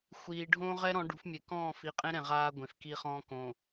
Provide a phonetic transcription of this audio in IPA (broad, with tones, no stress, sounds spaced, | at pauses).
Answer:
xʷ iː˨ ɖʱ õː˦ ʁ ɛ˦ ɾ ɔ̃˨˦ ɖ ṳ˨˦ f mʲ e˨ k ɔ̃ː˦˨ f i˨ qʼ ẽ˦ ɾ ɛ̃˨ ʁ aː˦ ɡʷ ẽ˨ f k i˦ χ ɔ̃ː˦ k õ˨